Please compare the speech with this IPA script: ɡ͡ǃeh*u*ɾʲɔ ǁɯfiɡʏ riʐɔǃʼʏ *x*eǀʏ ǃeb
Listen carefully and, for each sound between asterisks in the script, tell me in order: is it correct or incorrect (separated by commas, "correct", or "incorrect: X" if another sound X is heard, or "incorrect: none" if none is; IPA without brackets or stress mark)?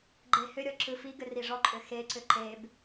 incorrect: ʏ, correct